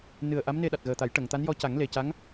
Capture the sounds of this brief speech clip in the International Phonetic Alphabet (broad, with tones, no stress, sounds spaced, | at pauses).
n ɨ˨˩ ə̯ ʔ a˧˥ m n e˧ ɗ a˨˩ t̚ ɣ əː˨˩ t̪ a˨˩˦ j ʈ ə˨˩˨ ŋ t̪ a˧˥ n j ɔ˧ c a˨˩˦ ŋ l e˨˩ c a˧˥ ŋ